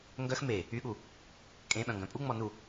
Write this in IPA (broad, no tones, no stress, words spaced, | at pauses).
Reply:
ŋɡœx me | yɠu | kʼẽɓœ̃ŋɡœ̃ pʼuŋ͡mɔ nu